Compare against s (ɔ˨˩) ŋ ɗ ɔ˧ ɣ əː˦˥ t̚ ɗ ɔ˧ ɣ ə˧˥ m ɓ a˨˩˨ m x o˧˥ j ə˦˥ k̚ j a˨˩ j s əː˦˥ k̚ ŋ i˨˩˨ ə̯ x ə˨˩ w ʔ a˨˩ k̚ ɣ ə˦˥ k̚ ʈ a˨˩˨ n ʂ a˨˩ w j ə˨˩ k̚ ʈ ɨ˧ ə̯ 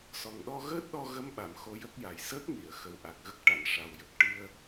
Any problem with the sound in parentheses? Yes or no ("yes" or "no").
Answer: no